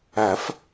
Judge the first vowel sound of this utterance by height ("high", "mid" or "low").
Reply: low